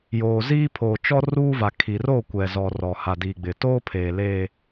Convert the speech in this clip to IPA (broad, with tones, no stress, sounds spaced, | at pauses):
j oː˨ z iː˦ pʰ oː˨ t͡ʃ ɔ˦ r uː˦ v a˨ kʰ i˨ r o˦˨ kʷ ɛ˨ z ɔ˨ r ɔ˨ h a˨ d iː˨ ɡ͡b ɪ˨ t oː˦ pʰ eː˨ l e˨